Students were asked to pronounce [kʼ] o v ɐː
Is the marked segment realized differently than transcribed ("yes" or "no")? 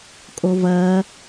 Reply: no